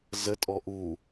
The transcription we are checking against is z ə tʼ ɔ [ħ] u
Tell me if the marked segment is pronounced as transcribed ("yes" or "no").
no